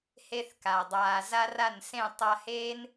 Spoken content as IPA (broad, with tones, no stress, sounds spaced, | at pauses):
h e˧ θ k a˨ dˤ aː˨ z a˦ r a˦˨ n s ẽ˦˨ tˤ a˧ h eː˦ n